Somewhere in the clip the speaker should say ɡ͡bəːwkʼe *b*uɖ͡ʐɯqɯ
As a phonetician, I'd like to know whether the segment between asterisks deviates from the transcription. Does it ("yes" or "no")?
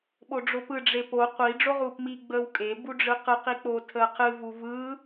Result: no